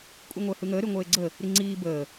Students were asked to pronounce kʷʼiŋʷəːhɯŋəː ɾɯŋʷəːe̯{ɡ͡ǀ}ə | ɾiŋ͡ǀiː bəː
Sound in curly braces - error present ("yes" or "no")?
no